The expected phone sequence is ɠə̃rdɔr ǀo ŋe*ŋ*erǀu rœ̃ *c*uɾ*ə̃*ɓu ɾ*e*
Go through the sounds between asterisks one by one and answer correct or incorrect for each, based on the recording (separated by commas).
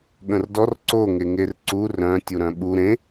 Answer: correct, incorrect, incorrect, incorrect